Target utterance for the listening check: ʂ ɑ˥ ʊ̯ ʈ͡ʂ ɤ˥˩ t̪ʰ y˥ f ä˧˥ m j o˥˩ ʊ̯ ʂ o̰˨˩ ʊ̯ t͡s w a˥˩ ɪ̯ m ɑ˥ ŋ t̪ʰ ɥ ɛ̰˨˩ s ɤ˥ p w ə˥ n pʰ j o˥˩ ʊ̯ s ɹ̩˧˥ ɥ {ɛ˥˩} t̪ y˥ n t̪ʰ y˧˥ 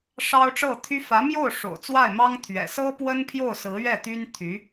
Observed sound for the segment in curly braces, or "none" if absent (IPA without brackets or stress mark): ɛ˥˩